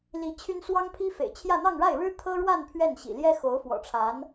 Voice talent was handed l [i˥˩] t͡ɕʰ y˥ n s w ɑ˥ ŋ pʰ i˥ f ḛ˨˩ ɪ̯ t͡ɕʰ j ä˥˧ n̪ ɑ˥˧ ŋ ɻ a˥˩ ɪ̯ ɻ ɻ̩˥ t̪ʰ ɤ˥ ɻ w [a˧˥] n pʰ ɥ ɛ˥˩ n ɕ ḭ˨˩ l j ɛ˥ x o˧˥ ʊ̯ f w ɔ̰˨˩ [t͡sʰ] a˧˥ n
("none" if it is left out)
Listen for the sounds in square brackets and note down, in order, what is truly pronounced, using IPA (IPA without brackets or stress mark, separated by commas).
i˧˥, a˥˧, ʈ͡ʂʰ